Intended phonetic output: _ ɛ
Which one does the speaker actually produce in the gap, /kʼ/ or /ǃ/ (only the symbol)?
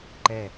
ǃ